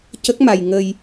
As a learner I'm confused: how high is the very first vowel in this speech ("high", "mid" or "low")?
mid